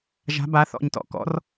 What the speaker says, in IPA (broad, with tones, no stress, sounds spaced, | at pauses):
ʒ a̤˨˦ b a˨˦ θ ɔ̰˧˩ ɲ t ɔ̰˧˩ k ɔ̰˨˦ r